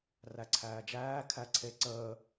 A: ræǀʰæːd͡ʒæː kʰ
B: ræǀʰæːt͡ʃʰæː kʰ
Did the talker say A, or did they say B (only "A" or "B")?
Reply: A